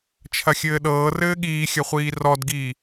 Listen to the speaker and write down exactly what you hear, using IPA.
t͡ʃʰ ɐ xʲ ɘː ɗ ɤː r ɘː ɠ iː xʲ ɐ χʷ iː r ɔ d ɡ iː

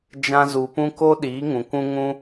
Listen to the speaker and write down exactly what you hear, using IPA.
d͡ʒ ã˧ z u˨ p ũ˦ k o˦ ɗ iː˨˦ ŋ ũ˨ kʷ ũ˦ ŋ ũ˦

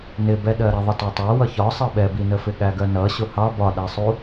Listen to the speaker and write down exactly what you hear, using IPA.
n ɪ b ɛ ɗ ɜ ɾ ɛ ðˤ ɪ t ɔ tˤ æ w ʌ ç ɒ sˤ ɜ ɓ ɛ b i n ə f ɪ ɠ æ ɡ ɜ n ʌ ɕ ʊ h ɑ b ɒ ɗ æ sˤ u

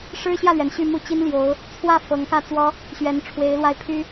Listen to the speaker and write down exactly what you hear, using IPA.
ʂ ɻ̩˥ ɕ j ä˥˩ l ɥ ɛ˩ n ɕ y˥˩ m u˥ t͡ɕ i˥ n l j o˧˥ ʊ̯ | t͡sʰ w ä˥˩ f ɤ˧˥ ŋ k ä˥˩ t͡s w ɔ˥ | ɕ ɥ ɛ˧˥ n ʈ͡ʂʰ w e˧˥ ɪ̯ l w a˥˩ ɪ̯ pʰ y˥

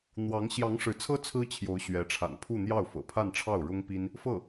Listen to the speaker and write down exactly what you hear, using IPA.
n̪ w ɑ˧˥ ŋ ɕ j ɑ˧˥ ŋ ʂ ɻ̩˧˥ t͡sʰ ɤ˥ t͡sʰ ɹ̩˥ t͡ɕʰ j o˧˥ ʊ̯ ɕ ɥ ɛ˧˥ ʈ͡ʂʰ a̰˨˩ n pʰ u˥˧ n̪ j ɑ˥˩ ʊ̯ f ɤ̰˨˩ pʰ a˥˧ n ʈ͡ʂʰ ɑ˥˩ ʊ̯ ɻ ʊ˥ ŋ p i˥ n | f ɤ˥˩

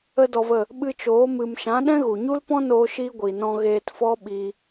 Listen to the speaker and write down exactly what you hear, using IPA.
ə˦ d ɔ˧ v ə˦˨ | ɓ ɨ˧ t͡ʃ oː˨˦ m ɨ˨ m ʃ ã˨˦ ɗ ɛ̃˦ ɣ u˨ ɲ u˦ l p ɔ̃˦ n oː˧ ʃ i˦ ɡʷ i˨ n ɔ̃˧ ɣ eː˧ t f ɔ˦ ɓ iː˧

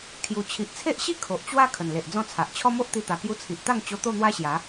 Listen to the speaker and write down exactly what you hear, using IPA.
kʰ j u˨˩ t͡ɕʰ i˨ ʔ t͡sʰ e˦ ʔ ɕ i˥˧ kʰ o˨ ʔ t͡ɕ w a˦ kʰ ə˨˩ n l e˨ ʔ d͡z ɔ̃˥˧ t͡sʰ a˨ ʔ t͡ɕʰ ɔ˦ m o˦ ʔ t̪ i˧ t̪ a˨˩ k j u˧ t͡sʰ i˨ ʔ t̪ a˥˧ ŋ t͡ɕ o˧ t̪ o˥˧ n̪ w a˦ ɕ j a˨˦

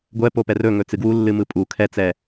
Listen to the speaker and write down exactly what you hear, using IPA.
ɡʷ ɛ p o p ɛ r ɵ ŋ ɵ t͡s ɨ ɡ w u lː ɨ m ɯ pʼ u kʰ ɛ t͡s ɛ

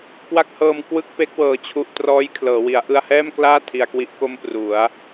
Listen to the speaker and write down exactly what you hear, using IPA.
k w a˥˩ k̚ h ɤː˧ m k w ɯ˥˩ k̚ p e˦˥ k̚ w ɤː˨˩ t͡ɕʰ u˨˩ ʔ t r ɔː˦˥ j kʰ l ɤː˩˦ w i˩˦ a̯ ʔ ɯ˧ a̯ h ɛː˥˩ m k l aː˥˩ tʰ i˧ a̯ k w i˦˥ ʔ k o˥˩ m p r u˩˦ a̯

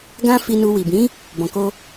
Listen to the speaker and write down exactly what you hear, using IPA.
ɡ ã˦ f i˧ n u˧ w i˨ b ĩ˨˦ | b ɔ̃˨ k o˧

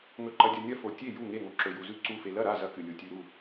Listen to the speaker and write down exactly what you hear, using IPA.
ŋ ɵ˧ ǃ ɐ˧ dʲ ɐ˧ nʲ ɐ˥˨ f o˧ tʲ e˥˨ j u˥˨ ŋ e˥˨ ŋ o˧ ǁ ɵ˧ j u˧ z ʉ˥˨ ǀ u˥˨ f e˧ l ɐ˥˨ ɾ a˥˨ z ɐ˧ k ɨ˧ lʲ u˧ tʲ ʉ˧ ɾ u˥˨

